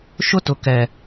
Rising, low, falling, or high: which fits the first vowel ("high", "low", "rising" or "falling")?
high